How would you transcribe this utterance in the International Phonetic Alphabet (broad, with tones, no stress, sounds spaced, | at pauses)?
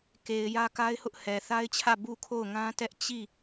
k e˨ ɪ̯ j ä˦ k a˦ ɪ̯ h ʊ˦ ʔ h ɛ˨ θ a˦ ɪ̯ t͡ɕʰ ä˦˨ b u˦˨ kʰ o˦˨ ʊ̯ ŋ ã˦ t ɛ˦ ʔ t͡ɕ i˦˨